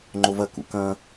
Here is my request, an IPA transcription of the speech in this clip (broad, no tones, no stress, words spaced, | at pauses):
ŋ͡ǃovɐ kṵkɐ̃